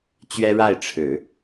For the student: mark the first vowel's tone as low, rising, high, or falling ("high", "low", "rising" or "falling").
high